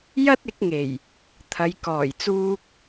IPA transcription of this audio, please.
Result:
j ɐ˥ t̚ ɪ˨˥ k̚ ŋ e˨˩ j | t̪ʰ ɐ˨˧ j k ɔː˨˩ j t͡s uː˧ k̚

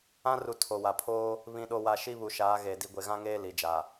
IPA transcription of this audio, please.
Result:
ã˦ r u˨ tʰ o˨ w a˨ pʰ oː˦ | β ĩ˨ ɗ o˨ w a˨ ʃ i˦ β u˨ ʃ aː˨˦ ɣ e˨ d i˨ ɡʷ e˨ ɣ ã˦ ŋ eː˦ l i˨ d͡ʒ a˨

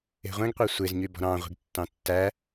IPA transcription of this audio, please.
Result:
e̤ ʁʷ ẽ ɡ qʷ ɛ sʷ e z ɲ y b ɔ̤ ɾ ɑ̃ ʁʷ i̤ ɡ tː ɑ̃ tː æ

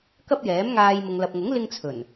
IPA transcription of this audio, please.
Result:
k ɐ˥ p̚ j ɛː˨˥ m ŋ aː˧ j m ʊ˨ ŋ l ɐ˨ p̚ ŋ ʊ˨˥ ŋ l ɪ˥ ŋ t͡sʰ ɵ˨˩ n

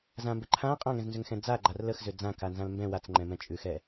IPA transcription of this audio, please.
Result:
z ã m b ɘ ǃʰ ã qʼ ã ŋ ɛ̃ z n z ʏ ŋ x ɛ̃ d͡z a ɡ͡ǃ a r l ə x z ʏ d͡z ã k a n z ã l m b ɛ̃ w a t͡s ŋ͡ǃ ɛ̃ m ɛ̃ t͡ʃʼ ʉ x ɛ

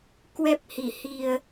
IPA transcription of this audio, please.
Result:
k w ɛ˦˥ p̚ h i˧˩ h i˨˩ ə̯

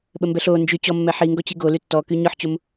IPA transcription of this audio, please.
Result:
ɓ ə m b ɛ ɬ o n d͡ʒ y t͡ɕ ɔ mː ɛ ħ i ŋ ɡ ɔ t͡ɕ i ɡ o l y tː ɔ k y ɲ ɔ ħ t͡ɕ o m

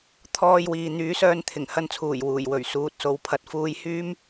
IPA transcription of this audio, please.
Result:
t̪ʰ ɔː˧ j w iː˨ n̪ yː˨˥ s œː˧ n t̪ʰ ɪ˨˩ ŋ h ɐ˧ n t͡sʰ uː˨˩ j w uː˨˩ j w ɵ˨˩ ɥ s uː˨ t̚ s o˨ w pʰ ɐ˨ t̚ f uː˧ j h yː˥ m

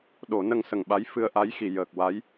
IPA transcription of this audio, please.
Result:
ɗ o˨˩˦ n ə˧ ŋ s ə˨˩˨ ŋ ɓ a˧˥ j f ɨ˧ ə̯ ʔ a˧˥ j x i˨˩˨ j əː˨˩ k̚ w a˧˥ j

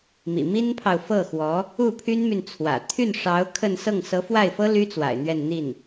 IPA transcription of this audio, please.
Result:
m ḭ˨˩ m i˥ n pʰ ɑ˨ ʊ̯ f ɤ˥˩ x w ɔ˧˥ | u˥˩ pʰ y˥ n m y˨ n t͡sʰ w ä̰˨˩ t̪ʰ y˥˩ n ʂ ɑ˧˥ ʊ̯ kʰ ə˥˧ n s ɤ˥˩ ŋ s ɤ˧˥ f w a˥˩ ɪ̯ f ɤ˥ l y˥ t͡s w a̰˨˩ ɪ̯ n̪ ɥ ɛ˥˧ n n̪ i˥˩ n

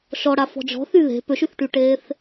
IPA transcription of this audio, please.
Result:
ʃ ɔ ɽ a f ɔ̤ d͡ʒ ɔ̤ θ y ð e̤ p ø ʃ y θ ʈ y ʈ eː θ

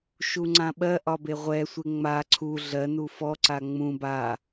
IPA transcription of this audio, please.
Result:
ʃ u ŋ͡ǀ ã ɓ ɜ ʔ ɒ b e ʁʷ ɛ sʷ e ŋ͡m a ǀʰ u ɮ ɜ n u f ɔ ǀ a ŋ͡m ũ b a

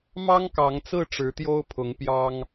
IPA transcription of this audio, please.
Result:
m ɑ˦ ŋ k ɑ˨˦ ŋ t͡s ɹ̩˥˨ ʈ͡ʂ ɻ̩˨˦ t̪ j o˦ ʊ̯ pʰ ʊ˨˦ ŋ p j ɑ˦ ŋ

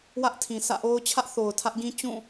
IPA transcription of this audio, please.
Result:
w ä˦ ʔ tʰ ĩ˨ sʰ ä̰˦˨ ʔ o˦ ʊ̯ t͡ɕʰ ä˦ ʔ θ o˨ ʊ̯ tʰ ä˦ ʔ ɡ ĩ˦ t͡ɕ ũ˦˨

